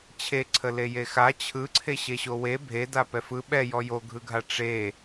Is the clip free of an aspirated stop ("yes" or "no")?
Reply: no